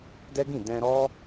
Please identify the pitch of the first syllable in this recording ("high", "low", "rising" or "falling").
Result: high